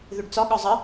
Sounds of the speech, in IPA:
ð ʏ ɖ t͡s ɒ ɠ ɒ zˤ ə

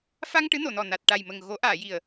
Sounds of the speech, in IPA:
f a˧ ŋ ʈ ɨ˧˥ n o˨˩˨ n ɔ˨˩ n a˨˩ t̚ ʈ a˨˩ j m ə˨˩ ŋ ɣ o˨˩˦ ʔ aː˨˩˨ j i˨˩ ə̯

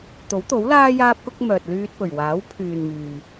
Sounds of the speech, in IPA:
t̪ o˨˥ w t̪ o˨˥ w l aː˥ j aː˥ p̚ k ʊ˥ k̚ m œː˨ t̚ l yː˧ t̚ p ɵ˨˩ ɥ w aː˨˥ w pʰ yː˨ n m yː˨

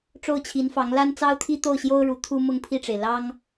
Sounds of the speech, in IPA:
ʈ͡ʂ o˥˩ ʊ̯ t͡ɕʰ i˧˥ n f ɑ˧˥ ŋ l a˥ n t͡s ɑ˥ ʊ̯ t̪ʰ i˥ t̪ o˥˩ ʊ̯ ɕ j o˥ ʊ̯ ɻ u˧˥ t̪ʰ u˥ m ʊ˥˧ ŋ pʰ i˥˩ ʈ͡ʂ e˩ ɪ̯ l ɑ˥ ŋ

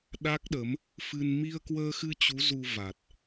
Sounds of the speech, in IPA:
ɗ a˦˥ k̚ ɗ ə˨˦ m | f ɨ˧ n m i˧ ə̯ k w əː˧ x ɨ˧ t͡ɕ u˨˦ z u˧ v a˨˩ t̚

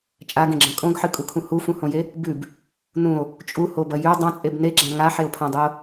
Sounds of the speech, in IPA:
t͡ʃʼ a ɡ ẽ ɡ͡ǁ ɐ̃ kʼ õ ɡ ħ ɨ kʼ u kʰ ũ h u f ũ h õ j e | b ʉ b | n ũ o̯ | t͡ʃʼ u h o b ɐ j ʉ dˤ ã t͡sʼ e b n e ɡ͡ǁ ã ŋ a ħ e o̯ pʰ ã dˤ ɵ o̯

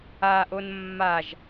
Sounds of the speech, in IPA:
a ʔ o n mː a ʒ

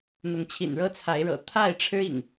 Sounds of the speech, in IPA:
n̪ ʊ˨˦ ŋ t͡ɕʰ ḭ˨˩ n ɻ ɤ˦ t͡sʰ a˨˦ ɪ̯ ɻ ɤ̰˨˩ t̪ʰ a˥˨ ɪ̯ ʈ͡ʂʰ ɻ̩˦ ḭ˨˩ ŋ

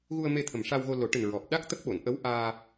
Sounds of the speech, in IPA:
ɣ u˧ ə̯ m e˧ t̪ʰ ə˨˩ m ʂ a˧ w ɣ o˧ l o˨˩˦ ʈ ɨ˨˩ n ɹ ɔ˨˩ p̚ ɗ a˦˥ k̚ t̪ ə˦˥ k̚ ɓ o˨˩˨ n ʔ ə˧˥ w ʔ aː˧

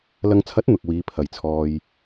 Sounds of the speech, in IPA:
l ɐ˨ ŋ t͡sʰ ɐ˨˥ t̚ n̪ ʊ˨ k̚ w iː˨˧ pʰ ɐ˨ j t͡sʰ ɔː˧ j

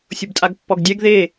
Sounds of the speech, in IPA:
sʲ ʊ b tʼ a ɡ pː ɔ ɡ dʲ ɛ ɡ ð e

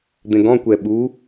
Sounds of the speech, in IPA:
d̪ ẽ ɡ ɔ̃ kʷ ɛ ɓ u

